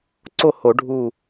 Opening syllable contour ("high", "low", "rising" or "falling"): falling